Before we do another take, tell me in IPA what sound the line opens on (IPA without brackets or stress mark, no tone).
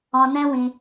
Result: ɔ̃